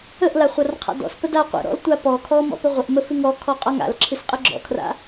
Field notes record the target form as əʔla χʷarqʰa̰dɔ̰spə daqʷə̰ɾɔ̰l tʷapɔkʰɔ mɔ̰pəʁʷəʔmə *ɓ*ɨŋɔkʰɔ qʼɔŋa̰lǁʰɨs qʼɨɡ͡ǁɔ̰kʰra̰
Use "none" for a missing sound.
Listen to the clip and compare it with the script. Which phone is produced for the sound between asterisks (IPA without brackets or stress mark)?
f